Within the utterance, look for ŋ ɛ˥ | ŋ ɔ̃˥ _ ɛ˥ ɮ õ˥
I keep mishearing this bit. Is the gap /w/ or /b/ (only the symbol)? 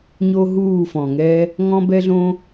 b